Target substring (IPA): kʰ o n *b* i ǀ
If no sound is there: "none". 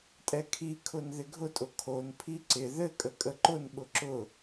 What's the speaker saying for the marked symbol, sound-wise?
pʰ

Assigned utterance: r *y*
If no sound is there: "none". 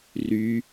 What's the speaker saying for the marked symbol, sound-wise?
y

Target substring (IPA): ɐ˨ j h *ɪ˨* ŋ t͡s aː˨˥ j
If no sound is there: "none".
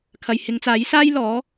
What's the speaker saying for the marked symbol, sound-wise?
ɪ˨˧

